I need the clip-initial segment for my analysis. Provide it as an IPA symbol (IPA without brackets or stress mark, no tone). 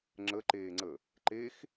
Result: ŋ͡ǁ